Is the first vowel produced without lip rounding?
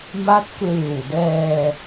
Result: yes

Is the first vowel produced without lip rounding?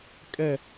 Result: yes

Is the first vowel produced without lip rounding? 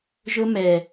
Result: no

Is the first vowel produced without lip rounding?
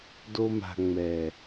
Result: no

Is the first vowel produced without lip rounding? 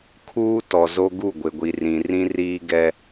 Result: no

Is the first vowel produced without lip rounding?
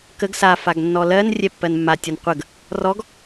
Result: yes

